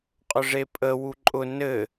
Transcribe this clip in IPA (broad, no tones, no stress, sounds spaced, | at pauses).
qʼ ʊ ʐ e pʼ ə w u ǃʼ ʊ n ɘ